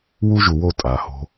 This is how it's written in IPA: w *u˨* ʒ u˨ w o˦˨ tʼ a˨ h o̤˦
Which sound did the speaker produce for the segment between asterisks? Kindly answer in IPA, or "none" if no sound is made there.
u˦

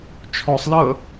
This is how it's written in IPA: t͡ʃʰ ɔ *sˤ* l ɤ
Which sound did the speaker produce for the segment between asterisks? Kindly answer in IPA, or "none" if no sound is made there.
sˤ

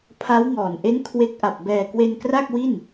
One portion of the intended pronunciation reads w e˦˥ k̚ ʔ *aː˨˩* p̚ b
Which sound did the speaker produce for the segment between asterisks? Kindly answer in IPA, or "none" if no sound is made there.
a˨˩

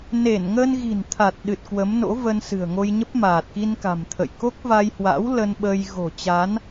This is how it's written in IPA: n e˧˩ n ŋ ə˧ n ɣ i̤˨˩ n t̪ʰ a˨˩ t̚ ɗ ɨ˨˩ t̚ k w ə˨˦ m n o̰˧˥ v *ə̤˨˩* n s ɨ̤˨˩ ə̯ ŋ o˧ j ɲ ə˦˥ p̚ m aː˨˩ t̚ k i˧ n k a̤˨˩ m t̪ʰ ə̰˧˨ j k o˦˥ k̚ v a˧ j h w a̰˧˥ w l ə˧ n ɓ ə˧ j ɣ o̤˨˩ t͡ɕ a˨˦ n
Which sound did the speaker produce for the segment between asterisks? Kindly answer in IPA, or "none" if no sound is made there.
ə˧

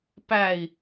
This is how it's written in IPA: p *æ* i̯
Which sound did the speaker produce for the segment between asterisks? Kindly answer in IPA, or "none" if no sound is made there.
æ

